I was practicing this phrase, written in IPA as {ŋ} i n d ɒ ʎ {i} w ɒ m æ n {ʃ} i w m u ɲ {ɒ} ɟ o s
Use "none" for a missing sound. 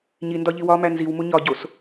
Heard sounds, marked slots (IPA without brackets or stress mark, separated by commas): ɲ, i, z, ɒ